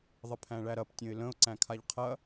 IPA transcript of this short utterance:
ðˤəpʰæ̃ɭæɾɐp tʲə̃ɪ̯lə̃ʊ̯ ǀæ̃kʰaʎqʰɐ

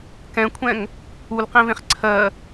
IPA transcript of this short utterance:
kɛ̃kʷʰɛ̃ŋ | ulqẽvẽχ ǀʰɜ

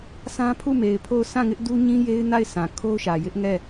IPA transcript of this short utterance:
sã˦pʰu˦˨me˨ɪ̯pʰo˦˨ʊ̯ sã˦˨ŋɪ˦ʔ du˦ɲĩ˦je˦ɪ̯ na˦˨ɪ̯sʰã˨ kʰo˦ʊ̯ʃä˨ jɪ˦ʔŋɛ˦˨

